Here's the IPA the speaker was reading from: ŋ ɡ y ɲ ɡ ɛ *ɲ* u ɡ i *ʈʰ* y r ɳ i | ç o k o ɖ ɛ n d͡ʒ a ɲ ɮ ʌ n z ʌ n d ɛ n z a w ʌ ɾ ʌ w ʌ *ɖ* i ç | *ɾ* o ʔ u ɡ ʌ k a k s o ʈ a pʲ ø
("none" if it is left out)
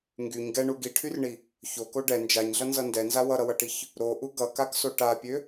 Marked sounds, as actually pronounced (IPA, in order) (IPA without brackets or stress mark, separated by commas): ɳ, ʈʰ, ʈ, ɾ